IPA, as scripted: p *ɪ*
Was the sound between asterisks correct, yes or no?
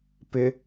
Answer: yes